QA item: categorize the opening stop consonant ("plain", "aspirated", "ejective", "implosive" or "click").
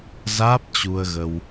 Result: plain